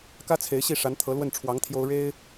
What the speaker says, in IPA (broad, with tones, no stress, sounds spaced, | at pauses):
k ä˥ t͡sʰ e˧˥ ɪ̯ ɕ i˥˩ ʂ a˧˥ n t̪ʰ ɤ˧˥ l w ə˥˩ n ʈ͡ʂʰ w ɑ˧˥ ŋ t̪ʰ j o˥ ʊ̯ ɻ e˥ ɪ̯